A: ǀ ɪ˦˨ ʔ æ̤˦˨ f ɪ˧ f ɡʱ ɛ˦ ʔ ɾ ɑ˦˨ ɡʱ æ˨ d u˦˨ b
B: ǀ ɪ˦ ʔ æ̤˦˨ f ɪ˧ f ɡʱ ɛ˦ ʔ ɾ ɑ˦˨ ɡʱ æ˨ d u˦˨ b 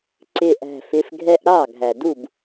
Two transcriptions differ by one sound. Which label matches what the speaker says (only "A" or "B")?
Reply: A